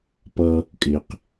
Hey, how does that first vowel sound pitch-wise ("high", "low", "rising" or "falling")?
high